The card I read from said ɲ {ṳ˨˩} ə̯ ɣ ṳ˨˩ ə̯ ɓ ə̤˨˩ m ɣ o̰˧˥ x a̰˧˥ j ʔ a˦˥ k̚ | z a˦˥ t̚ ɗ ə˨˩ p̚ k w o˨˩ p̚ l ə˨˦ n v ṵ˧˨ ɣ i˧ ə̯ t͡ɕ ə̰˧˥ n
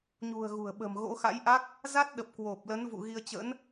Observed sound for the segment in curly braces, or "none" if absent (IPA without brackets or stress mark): ṳ˨˩